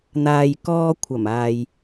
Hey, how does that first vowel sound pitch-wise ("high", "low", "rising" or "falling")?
low